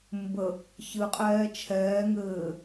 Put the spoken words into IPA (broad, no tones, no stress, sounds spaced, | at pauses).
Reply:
m b ə | ç ɨ qʼ ɛː t͡ʃʰ ɛː ŋ ɘː